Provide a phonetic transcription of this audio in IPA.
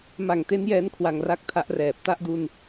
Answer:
m a˨˩ ŋ t e˦˥ n j ɛː˦˥ n kʰ w a˧ ŋ r a˥˩ k̚ tʰ a˦˥ ʔ r ɛː˨˩ p̚ t a˥˩ ʔ d u˧ n

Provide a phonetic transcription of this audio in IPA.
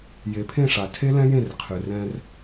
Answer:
j e˨˦ pʰ ẽ˦˨ ʂ a˨ tʰ e˦ l ɛ̃˦ j ẽ˦˨ r qʰ ɨ˨ r ɛ̃˧ r

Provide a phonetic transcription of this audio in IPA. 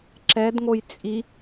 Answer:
ǁ ɛ d ŋ o j t͡sʼ i

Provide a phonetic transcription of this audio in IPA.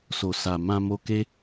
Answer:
s o˨ s a˨ m ã˧ m o˧ k e˦

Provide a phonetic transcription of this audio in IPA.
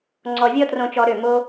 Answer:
ŋ͡ǀ ɔ˨ vʲ ɔ˧ t r õ˧ t͡ʃ ɔ˧ ɾ ø˦˨ m o˦

